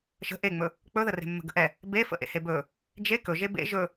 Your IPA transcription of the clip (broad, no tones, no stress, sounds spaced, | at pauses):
ʃ ə̤ ʔ e ŋ͡m ɵ | k͡p ɵ ð ə r e̤ mː ə̤ ɡ ə̤ ʔ ɛ | b e f ə̰ ʔ ḛ h e b ɵ | d͡ʒ e k ɵ ʒ e b ḛ ʒ ɵ